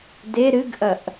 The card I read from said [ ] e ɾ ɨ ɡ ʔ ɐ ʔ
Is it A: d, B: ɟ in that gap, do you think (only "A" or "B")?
A